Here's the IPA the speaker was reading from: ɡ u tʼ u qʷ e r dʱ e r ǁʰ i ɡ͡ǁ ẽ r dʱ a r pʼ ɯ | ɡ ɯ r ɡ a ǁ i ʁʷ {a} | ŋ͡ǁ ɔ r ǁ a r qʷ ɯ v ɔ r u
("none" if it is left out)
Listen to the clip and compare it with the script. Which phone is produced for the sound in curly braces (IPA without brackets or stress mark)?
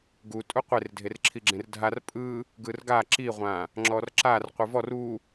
ã